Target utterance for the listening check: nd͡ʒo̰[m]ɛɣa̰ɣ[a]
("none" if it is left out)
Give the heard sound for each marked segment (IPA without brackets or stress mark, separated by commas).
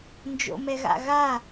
m, a